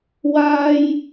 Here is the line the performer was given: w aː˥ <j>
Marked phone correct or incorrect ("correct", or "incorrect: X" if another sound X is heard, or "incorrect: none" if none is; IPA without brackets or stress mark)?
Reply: correct